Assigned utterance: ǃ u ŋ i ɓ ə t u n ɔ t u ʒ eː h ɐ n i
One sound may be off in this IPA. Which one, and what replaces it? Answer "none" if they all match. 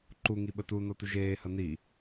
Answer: none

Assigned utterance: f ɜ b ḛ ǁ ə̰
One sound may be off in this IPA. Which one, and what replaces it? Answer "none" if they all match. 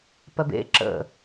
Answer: f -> p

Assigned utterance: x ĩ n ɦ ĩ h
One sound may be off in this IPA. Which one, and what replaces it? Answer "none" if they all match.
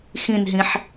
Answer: h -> ħ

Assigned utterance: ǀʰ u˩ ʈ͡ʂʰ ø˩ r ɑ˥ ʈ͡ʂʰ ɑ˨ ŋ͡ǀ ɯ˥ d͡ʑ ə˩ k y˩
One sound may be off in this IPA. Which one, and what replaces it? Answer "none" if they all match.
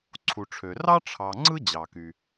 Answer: ə˩ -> ɑ˩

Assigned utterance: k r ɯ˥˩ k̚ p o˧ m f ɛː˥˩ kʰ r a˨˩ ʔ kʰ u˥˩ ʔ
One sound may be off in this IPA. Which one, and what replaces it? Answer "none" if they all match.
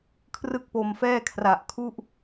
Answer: k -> kʰ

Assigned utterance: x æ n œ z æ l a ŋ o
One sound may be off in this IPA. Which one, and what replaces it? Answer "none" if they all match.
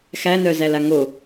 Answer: none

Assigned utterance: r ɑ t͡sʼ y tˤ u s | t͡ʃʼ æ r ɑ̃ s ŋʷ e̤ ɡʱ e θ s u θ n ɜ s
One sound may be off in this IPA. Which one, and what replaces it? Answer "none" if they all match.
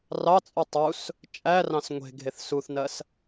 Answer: none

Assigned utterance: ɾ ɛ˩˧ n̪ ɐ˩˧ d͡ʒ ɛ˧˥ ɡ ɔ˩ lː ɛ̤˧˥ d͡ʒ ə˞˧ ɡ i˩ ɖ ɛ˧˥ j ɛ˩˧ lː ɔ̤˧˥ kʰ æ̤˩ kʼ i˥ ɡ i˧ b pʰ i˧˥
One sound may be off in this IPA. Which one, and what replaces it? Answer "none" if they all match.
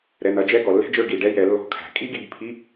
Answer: none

